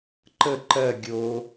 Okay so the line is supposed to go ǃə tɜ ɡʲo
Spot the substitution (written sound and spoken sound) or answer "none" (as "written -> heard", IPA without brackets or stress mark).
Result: t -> ǃ